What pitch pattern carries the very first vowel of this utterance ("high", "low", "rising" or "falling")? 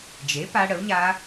rising